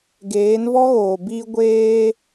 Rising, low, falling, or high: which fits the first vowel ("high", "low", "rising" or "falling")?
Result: rising